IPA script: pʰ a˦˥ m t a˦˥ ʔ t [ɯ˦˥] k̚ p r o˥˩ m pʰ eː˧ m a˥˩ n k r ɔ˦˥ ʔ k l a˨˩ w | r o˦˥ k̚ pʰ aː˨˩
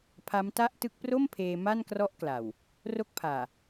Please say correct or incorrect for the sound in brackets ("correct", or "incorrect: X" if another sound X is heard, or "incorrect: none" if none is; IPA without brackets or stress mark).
correct